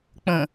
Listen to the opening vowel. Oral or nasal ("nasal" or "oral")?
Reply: nasal